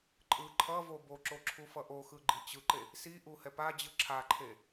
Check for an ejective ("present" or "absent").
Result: present